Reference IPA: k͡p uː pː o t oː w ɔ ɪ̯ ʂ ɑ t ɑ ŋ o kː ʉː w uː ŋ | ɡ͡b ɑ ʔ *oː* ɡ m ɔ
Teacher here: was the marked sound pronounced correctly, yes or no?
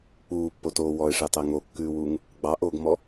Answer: yes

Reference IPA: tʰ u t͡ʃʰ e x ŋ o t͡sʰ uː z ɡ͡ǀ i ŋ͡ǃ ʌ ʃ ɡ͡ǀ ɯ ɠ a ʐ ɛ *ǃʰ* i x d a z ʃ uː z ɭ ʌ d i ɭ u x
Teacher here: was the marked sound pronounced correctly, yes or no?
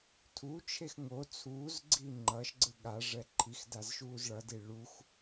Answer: yes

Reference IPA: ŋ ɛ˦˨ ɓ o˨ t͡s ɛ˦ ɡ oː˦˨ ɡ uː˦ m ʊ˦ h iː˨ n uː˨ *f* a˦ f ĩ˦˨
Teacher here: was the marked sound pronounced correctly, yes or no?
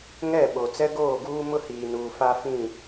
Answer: yes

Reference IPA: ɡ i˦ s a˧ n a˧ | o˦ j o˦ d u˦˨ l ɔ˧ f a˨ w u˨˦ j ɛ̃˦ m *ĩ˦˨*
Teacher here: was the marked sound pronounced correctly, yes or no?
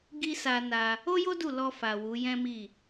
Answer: no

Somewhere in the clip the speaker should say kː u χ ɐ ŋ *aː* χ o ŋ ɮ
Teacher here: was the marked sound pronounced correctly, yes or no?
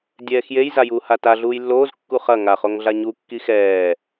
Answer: no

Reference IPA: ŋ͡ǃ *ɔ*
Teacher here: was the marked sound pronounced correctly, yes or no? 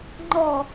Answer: yes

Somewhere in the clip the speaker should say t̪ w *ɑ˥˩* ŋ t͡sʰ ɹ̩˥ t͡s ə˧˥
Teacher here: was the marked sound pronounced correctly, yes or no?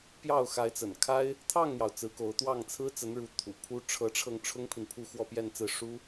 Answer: yes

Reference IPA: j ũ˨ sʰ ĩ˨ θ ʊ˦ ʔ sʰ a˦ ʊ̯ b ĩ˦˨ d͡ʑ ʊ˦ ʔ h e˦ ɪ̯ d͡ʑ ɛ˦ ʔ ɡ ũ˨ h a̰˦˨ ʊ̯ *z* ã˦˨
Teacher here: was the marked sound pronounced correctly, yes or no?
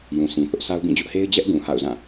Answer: yes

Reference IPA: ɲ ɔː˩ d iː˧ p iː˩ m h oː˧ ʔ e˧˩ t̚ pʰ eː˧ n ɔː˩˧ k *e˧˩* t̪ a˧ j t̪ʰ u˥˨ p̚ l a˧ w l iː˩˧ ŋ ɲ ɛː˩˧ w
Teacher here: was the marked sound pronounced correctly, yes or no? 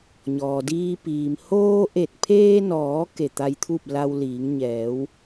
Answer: yes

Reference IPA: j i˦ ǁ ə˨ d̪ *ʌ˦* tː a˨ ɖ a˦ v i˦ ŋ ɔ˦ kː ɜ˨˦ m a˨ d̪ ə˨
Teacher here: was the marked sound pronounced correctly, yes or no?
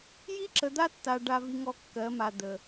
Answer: no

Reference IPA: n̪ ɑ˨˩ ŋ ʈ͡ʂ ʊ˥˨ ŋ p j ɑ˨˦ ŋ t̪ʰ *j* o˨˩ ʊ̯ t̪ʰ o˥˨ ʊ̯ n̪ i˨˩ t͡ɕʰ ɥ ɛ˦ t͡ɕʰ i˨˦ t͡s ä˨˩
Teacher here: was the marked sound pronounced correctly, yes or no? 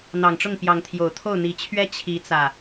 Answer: yes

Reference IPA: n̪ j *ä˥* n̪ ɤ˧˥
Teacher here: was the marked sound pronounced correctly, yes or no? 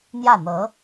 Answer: no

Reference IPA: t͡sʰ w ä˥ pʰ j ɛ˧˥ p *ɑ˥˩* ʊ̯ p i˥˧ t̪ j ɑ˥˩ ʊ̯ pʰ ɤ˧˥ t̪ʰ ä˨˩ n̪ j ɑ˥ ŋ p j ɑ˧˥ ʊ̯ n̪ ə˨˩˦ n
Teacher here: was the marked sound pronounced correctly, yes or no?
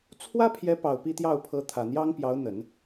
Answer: no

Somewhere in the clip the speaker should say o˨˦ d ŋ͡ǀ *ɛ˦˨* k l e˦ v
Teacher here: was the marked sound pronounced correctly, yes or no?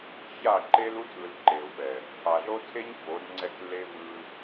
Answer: yes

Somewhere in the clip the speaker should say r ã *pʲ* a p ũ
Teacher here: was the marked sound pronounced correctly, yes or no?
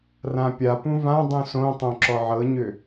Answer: yes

